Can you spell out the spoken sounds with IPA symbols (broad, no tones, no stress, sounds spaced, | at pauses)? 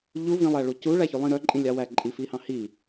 ʎ u v ĩ lˠ æ ɭ u c u ɭ æ ç y lˠ ĩ ɾ œ ǃʼ ĩ lʲ ɑ w æ ǃʼ i f i h ɑ̃ h i